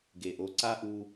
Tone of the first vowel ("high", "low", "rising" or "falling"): low